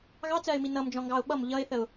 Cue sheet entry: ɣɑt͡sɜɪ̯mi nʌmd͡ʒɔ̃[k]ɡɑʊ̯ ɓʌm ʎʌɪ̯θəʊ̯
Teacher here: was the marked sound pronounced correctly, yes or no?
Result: no